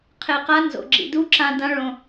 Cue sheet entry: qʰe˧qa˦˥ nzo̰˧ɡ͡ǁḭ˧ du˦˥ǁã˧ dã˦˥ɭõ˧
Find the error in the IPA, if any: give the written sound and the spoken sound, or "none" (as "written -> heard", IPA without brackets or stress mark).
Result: none